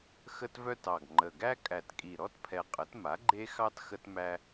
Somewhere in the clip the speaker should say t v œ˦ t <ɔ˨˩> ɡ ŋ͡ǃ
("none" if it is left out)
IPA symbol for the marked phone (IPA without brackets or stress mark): ɑ˨˩